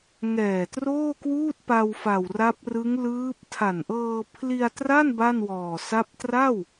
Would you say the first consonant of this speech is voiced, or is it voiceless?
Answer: voiced